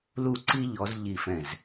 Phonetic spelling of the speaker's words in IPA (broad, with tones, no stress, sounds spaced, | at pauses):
l u˧˩ ǀ i˧ ʎ ɔ˩˧ z ʎ i˧˩ f ɛ̃˧˩ z